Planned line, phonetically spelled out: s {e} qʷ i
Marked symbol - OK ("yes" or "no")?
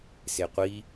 yes